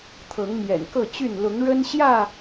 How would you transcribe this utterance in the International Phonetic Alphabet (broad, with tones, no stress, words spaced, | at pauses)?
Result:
t̪ʰɤ˨˦ŋmjɛ̰˨˩nkɤ˥˨ t͡ɕy˥˨n lʊ˨˦ŋɻə˦nɕjä˥˨